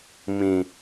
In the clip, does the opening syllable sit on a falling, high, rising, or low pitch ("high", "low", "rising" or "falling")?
low